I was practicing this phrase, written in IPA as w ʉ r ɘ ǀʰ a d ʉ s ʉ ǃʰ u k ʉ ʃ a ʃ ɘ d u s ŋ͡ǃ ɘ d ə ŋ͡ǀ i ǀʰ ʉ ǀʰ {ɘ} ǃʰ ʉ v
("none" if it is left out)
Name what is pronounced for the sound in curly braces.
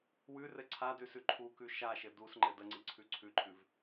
ʉ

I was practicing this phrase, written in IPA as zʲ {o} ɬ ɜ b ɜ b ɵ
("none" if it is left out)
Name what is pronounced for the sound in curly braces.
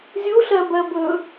u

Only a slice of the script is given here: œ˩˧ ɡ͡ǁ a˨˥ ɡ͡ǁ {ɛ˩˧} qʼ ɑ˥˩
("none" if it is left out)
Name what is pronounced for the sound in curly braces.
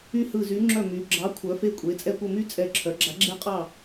ɛ˥˧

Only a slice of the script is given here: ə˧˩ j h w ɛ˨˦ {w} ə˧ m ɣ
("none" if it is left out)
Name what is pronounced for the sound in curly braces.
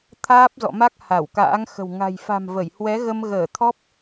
ɣ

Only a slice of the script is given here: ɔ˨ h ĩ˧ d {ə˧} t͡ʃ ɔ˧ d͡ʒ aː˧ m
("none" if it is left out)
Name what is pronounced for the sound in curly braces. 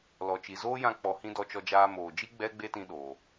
ɔ˧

